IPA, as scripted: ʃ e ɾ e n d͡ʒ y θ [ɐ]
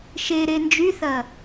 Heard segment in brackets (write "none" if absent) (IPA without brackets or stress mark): ɐ